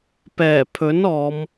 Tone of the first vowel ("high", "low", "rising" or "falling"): low